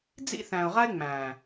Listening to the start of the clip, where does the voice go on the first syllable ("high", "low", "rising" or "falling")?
high